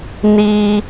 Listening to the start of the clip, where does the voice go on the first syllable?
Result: low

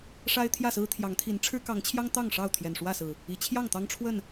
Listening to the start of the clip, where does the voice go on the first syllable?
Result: high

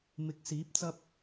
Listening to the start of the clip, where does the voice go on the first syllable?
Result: rising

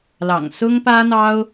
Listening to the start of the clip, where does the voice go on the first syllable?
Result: low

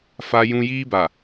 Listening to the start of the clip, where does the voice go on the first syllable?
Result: high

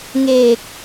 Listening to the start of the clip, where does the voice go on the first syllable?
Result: low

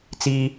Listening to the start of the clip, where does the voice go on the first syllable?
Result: high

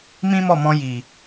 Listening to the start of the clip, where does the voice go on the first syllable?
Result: high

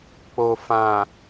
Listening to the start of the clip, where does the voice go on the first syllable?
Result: low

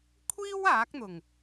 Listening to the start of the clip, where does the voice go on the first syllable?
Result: high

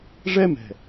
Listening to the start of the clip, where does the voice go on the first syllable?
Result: high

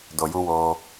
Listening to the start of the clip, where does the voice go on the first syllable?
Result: low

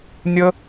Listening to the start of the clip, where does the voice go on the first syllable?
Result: high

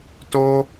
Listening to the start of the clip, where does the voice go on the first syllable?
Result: high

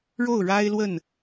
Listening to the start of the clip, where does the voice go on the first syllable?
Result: falling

